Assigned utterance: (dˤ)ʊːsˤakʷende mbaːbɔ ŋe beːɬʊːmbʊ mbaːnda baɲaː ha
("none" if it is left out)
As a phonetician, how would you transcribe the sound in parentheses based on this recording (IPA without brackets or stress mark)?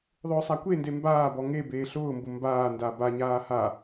ðˤ